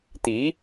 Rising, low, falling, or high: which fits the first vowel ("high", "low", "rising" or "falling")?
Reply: rising